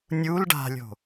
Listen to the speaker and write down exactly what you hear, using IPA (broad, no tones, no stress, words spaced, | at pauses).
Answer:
nʲul ɖa̤lʲo̤